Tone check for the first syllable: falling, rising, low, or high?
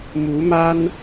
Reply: rising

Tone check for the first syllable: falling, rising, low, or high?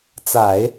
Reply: low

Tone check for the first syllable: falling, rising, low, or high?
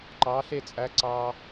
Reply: rising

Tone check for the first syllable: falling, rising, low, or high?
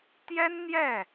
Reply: high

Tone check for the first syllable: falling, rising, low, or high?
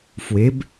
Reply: rising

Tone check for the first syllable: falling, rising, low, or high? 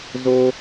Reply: high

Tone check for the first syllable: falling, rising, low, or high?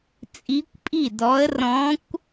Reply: rising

